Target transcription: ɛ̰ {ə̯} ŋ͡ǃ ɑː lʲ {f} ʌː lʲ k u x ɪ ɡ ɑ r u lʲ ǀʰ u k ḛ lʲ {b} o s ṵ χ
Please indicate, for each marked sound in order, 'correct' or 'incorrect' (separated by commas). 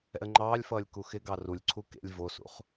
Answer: correct, correct, incorrect